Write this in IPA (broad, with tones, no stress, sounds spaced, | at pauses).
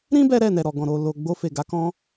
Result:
ɾ ĩ˦ b ɛ˦ ɾ ɛ˦˨ n ɛ˨ ɾ ɔ˨ ɡ ɔ̃˨ ɾ o˨ l o˨ ɡ͡b o˧ f e˨ ɡ a˨˦ k ɔ̃˧